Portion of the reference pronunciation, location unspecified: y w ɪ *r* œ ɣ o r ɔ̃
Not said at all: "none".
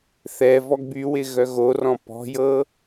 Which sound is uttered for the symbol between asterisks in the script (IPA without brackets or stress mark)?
ɣ